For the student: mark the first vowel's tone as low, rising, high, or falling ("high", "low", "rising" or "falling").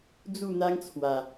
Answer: falling